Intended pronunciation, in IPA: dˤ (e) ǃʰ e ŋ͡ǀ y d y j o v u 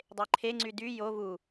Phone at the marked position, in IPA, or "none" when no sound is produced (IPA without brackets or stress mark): e